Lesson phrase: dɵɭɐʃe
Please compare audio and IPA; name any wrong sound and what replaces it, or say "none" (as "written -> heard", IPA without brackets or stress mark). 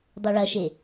d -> dˤ